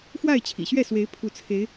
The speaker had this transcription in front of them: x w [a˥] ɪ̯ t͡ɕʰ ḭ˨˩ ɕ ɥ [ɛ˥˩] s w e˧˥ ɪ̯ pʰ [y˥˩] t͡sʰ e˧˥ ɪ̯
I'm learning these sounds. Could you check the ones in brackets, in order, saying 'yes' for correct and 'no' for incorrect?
no, yes, no

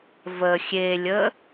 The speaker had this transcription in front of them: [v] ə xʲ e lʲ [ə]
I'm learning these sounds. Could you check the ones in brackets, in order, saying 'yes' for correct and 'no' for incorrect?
yes, yes

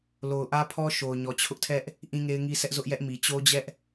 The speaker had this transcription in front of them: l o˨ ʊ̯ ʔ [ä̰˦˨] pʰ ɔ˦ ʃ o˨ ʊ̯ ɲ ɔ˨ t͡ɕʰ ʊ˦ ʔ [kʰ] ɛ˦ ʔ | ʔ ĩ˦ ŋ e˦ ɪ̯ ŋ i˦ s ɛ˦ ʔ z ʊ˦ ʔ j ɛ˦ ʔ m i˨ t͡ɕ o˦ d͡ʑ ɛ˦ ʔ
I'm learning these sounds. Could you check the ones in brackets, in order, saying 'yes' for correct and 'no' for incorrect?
no, no

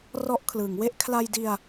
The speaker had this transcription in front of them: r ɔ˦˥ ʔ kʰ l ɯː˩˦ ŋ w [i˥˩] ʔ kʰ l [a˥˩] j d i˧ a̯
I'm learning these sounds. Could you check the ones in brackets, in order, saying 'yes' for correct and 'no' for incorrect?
no, no

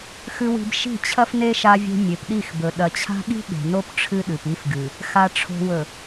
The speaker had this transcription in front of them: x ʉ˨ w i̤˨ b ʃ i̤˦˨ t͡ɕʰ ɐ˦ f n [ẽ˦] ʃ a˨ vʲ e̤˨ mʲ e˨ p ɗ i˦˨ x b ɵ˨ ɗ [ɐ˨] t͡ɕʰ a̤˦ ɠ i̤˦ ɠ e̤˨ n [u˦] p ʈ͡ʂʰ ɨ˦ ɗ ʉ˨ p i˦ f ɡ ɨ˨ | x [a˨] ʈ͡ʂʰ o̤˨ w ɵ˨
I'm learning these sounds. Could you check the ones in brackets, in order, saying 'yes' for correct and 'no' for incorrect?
no, yes, no, yes

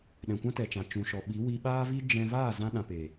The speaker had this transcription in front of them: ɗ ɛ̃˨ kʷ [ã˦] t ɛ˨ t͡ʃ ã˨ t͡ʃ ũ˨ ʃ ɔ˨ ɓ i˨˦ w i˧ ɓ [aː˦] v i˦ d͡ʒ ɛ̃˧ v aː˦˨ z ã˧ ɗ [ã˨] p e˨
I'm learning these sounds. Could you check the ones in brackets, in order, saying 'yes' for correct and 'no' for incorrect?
yes, yes, yes

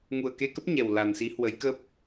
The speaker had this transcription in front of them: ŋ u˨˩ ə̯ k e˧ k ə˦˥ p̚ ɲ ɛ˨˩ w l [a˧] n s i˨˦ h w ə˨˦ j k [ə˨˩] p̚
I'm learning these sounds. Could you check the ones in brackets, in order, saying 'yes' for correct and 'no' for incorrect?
no, no

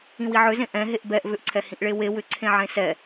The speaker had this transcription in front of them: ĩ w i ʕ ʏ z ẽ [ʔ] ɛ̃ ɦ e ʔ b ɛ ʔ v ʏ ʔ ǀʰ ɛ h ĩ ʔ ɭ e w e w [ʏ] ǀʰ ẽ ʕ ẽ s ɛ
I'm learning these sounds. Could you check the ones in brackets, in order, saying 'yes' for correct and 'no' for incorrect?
yes, yes

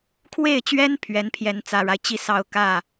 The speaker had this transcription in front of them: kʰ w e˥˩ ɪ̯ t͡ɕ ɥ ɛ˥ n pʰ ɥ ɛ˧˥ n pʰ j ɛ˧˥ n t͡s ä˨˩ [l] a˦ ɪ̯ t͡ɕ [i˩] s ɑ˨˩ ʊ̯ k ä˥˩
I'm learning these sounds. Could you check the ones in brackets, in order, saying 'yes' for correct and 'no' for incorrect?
no, no

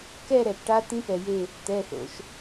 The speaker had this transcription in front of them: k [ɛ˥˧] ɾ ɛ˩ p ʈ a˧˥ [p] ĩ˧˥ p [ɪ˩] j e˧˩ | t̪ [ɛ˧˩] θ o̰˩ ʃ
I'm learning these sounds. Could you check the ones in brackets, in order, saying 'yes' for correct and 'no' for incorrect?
yes, no, no, no

